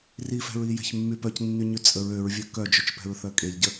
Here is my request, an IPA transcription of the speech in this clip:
rifɛ̤ɹi jɛ̤çmːypœcnːy ɲyt͡sʼəɹ øɹvʲœ kœd͡ʒøt͡ʃpɛ̤ɹ θœkʼeʎɟə

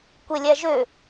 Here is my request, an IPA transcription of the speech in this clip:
kʷelʲæʒø

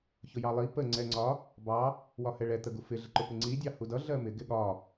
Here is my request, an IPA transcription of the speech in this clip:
çʊjɑlˠi pə ŋ͡ǀɛŋ͡ǀɒ | bɑ | wɒhɛɭɛ t̪əɡufɪ ɮɪǃʊpɪŋ͡ǀi dʲɑhudʌ ɮɜmɪ ɡɪɠɒ

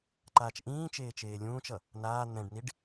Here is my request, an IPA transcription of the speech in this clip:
ǃaːt͡ʃʔĩː t͡ʃeːt͡ʃeːlʲũːt͡ʃʌ | naː n̪ɛ̃ɖniɖ

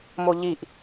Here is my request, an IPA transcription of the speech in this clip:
moʎiʔ

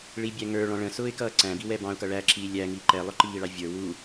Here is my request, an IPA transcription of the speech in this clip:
ɭibʲæ ŋə˞ɭɔ̃ ɭə̃sʊːɪ̯kʌ ǀæ̃biwɛ bɑ̃ʊ̯kʌ ɭæǁiː lʲæŋiː ǃɛlˠʊǃiːɭɑ vʲə˞ wu

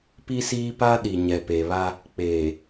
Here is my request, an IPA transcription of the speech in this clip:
pi˦siː˦ pa˦ ɗi˨ɲɛ˨pe˨βa˦ | k͡peː˨

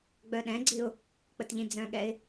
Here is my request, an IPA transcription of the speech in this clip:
ɡ͡bœɗɛ̃ɡ͡ǀiʊ̯ | k͡pətʎĩd͡zœ̃ɠɛɪ̯

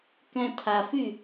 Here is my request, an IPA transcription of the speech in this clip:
kɛ̃tʰafy

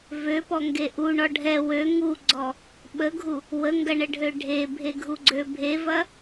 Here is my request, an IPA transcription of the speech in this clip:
vøpɔŋɡe ʔuɳɔ ɖʱɛ wø ŋuɡ͡ǀɔ | ɓəɡʱu | wəŋɡɐɳəɖʱø ɖʱebʱeɡʱuɡ͡ǀø bʱevɐ

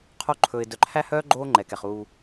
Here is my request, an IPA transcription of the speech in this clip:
qʰo˦ ǃʰɵː˨ɪ̯dœ˨ǃʰæ˦hœː˦ ɡ͡ǃoː˦ŋ͡ǃɛ˨kɛ˨χ uː˦

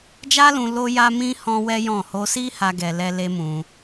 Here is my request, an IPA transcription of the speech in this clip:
d͡ʒa˦lũ˧ lo˦ja˦ mĩ˦ hɔ̃˦wɛ˦jɔ̃˦˨ ho˧si˦ ha˦ɡɛ˧lɛ˦ le˦mũ˧

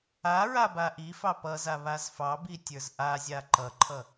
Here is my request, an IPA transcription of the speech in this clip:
a ɹabaʔifɑ pʌza βazfɑbi tʲə˞zʔazʲa ǃʌǃʰʌ

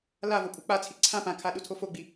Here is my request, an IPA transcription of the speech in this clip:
lavopʼu k͡pat͡sʰi ǀʰã pãkʰaɗutʰo foɡ͡bi

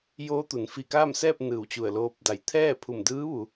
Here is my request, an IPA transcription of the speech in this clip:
joː˧˥t̪u˩˧n fi˧˩kaː˥˨msɛː˥˨p̚ nɯː˧˩wt͡ɕu˧˩ə̯ loː˧˥p̚ da˧˩j t̪ʰɛː˥˨pʰu˧˩mdɯː˧˥ ʋu˩˧

